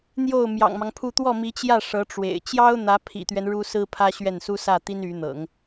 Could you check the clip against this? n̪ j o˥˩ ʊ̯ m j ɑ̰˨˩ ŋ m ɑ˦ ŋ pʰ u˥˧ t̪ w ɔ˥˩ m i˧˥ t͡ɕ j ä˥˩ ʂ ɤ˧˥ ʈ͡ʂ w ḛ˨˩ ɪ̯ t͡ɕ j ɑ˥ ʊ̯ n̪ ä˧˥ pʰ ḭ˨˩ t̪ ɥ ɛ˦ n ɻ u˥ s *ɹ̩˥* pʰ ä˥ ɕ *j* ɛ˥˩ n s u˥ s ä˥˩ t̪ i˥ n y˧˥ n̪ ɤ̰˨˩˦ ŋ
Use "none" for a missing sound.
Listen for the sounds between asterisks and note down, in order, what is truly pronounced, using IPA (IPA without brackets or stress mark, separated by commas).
ɹ̩˥, ɥ